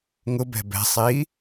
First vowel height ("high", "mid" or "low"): high